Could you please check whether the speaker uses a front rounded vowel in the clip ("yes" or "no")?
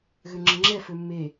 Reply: yes